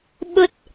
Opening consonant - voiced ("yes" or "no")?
yes